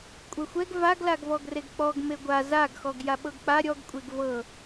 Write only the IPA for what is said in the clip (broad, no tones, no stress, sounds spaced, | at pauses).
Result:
kʷʼ ɛ xʷ ɛ ɡ v a ɡ l a ɡ v ɔ ɡ r e ɡ k͡p ɔ ɡ m e ɡʷ a z a ɡ x ɔ ɡ j a ɓ ɤ ɡ k͡p a ɾʲ ɔ ɡ kʷʼ e ɡ v ɤ